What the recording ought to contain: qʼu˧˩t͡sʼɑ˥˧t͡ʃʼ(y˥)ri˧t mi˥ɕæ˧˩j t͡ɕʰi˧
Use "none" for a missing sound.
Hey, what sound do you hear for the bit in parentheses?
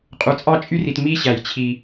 y˥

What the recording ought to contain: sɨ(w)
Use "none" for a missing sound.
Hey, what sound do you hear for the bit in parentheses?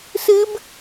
b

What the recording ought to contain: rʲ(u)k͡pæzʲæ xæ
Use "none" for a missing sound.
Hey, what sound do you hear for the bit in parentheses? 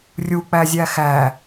u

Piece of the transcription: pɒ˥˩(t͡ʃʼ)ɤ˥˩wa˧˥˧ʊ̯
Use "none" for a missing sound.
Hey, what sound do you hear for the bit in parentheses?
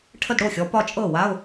t͡ʃʼ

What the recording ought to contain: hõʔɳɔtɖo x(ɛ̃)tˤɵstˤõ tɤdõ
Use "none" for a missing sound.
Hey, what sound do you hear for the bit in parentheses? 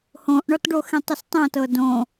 ẽ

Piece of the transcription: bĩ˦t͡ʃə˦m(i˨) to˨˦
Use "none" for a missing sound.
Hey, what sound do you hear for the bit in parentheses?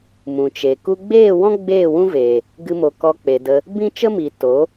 i˨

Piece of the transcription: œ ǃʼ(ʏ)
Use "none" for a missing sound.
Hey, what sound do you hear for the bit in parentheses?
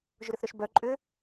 ʏ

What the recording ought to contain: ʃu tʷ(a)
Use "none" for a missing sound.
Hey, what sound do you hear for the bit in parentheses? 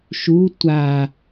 a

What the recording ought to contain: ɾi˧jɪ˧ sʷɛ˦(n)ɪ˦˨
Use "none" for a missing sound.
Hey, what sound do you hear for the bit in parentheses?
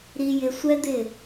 d̪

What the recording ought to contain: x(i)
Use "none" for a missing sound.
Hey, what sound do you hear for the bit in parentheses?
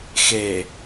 e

